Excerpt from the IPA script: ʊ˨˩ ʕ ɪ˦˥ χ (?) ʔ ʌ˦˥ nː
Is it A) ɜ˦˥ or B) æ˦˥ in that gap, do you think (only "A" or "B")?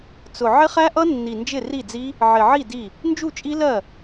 B